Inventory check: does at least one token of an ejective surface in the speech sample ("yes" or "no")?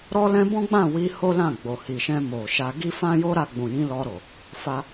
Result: no